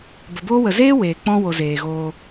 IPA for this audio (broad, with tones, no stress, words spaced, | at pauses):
bə˨boː˦wə˨ zeː˦ weː˨k͡pɔ̃˦wo˨ zeː˨ɣoː˧